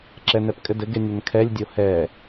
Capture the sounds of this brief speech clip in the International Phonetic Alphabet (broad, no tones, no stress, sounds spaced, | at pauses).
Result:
ǁ ɛ n ɛ p kʼ ɘ d ɘ ɡ e nʲ ɐ n kʰ ɛ lʲ dʲ o h ɛ